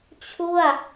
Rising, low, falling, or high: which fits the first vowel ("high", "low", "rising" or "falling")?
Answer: falling